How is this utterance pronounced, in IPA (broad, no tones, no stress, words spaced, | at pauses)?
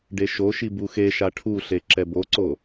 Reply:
ɖeʃoʃi buxeʃa ʈʰuɬe ǁɛboǀo